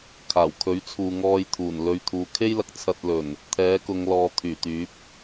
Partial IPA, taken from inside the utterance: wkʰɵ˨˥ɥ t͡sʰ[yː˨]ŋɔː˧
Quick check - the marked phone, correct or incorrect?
incorrect: uː˨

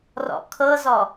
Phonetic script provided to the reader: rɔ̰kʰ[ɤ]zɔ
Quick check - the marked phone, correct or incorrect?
correct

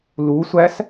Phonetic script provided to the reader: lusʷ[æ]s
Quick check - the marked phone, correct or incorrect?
correct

